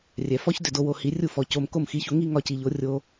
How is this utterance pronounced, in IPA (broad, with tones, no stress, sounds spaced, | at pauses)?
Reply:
rʲ ɛ˩ f ɔ˥ ç d ʏ˥˩ d o˧ w o˧ h i˩˥ rʲ u˥˩ f ɔ˩ c o˧ m k o˥˩ m x i˩˥ ç o˧ ŋ i˥ ŋ ɒ˧ c i˩ ʎ o˩˥ rʲ o˧